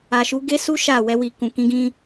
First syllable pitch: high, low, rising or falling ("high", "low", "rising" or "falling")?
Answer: low